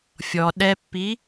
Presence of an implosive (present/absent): present